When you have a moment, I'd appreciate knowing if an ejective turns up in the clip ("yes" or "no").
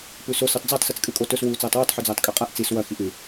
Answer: yes